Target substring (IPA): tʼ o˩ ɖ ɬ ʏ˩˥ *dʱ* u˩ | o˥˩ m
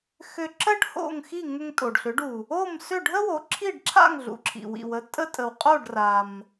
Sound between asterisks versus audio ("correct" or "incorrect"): incorrect